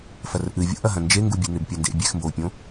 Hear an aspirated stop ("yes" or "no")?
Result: no